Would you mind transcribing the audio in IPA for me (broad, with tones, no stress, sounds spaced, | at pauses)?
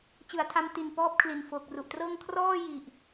t͡ɕ ɯ˩˦ a̯ tʰ a˧ m t i˨˩ n p ɔː˥˩ p̚ kʰ l i˨˩ n f oː˨˩ k̚ r u˨˩ ʔ t r ɤː˥˩ ŋ kʰ r ɔː˥˩ j i˨˩ ʔ